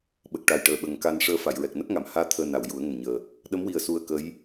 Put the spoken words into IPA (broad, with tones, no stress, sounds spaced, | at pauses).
ɓ ə˨˩ k̚ ʈ a˨˩ j ʈ əː˨˩ ɓ ə˨˩ ŋ k a˧ n ʂ əː˧ f a˨˩˨ j ɹ ɛ˨˩ k̚ n ə˦˥ k̚ ŋ a˨˩˨ m h aː˧ t̪ʰ əː˧ n a˨˩˨ w j u˨˩˦ ə̯ ŋ ə˨˩ m ɲ əː˨˩ | ɗ ə˧˥ m w i˨˩ ə̯ s u˧ ə̯ k ə˧˥ j